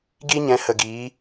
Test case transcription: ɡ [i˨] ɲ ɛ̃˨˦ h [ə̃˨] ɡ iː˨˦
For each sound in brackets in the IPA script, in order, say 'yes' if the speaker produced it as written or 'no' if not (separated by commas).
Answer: no, no